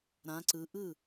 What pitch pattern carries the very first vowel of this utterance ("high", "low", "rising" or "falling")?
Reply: rising